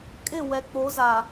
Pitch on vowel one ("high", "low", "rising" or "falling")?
falling